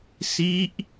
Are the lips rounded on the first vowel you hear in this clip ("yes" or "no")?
no